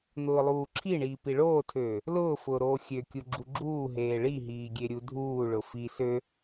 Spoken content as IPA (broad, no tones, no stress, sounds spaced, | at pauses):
n̪ ʊː lˠ uː ǁʰ i ɳ iː p i ɭ oː tʰ øː | l ʊː f ʊː ɾ oː xʲ ø kʲ u ɡ͡ǁ u ɡ͡ǁ uː ɦ eː ɭ i ɦ iː ɡʲ e ɾʲ u dʱ uː ɭ ʊ f i s ø